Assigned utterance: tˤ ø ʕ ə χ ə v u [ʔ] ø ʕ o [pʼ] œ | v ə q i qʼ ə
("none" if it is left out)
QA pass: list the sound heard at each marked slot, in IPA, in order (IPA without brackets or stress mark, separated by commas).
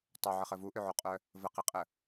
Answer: ʔ, qʼ